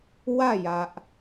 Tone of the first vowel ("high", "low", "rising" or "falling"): falling